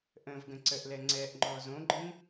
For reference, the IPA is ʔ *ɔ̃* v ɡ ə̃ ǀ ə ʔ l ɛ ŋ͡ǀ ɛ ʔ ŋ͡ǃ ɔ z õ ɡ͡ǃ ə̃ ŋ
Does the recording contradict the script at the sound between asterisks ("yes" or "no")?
yes